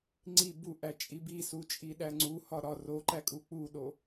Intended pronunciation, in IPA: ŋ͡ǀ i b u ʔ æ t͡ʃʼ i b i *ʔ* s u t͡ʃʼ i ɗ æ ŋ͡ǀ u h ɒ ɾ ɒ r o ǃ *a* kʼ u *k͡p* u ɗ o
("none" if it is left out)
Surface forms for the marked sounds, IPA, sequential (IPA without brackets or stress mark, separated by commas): none, æ, k͡p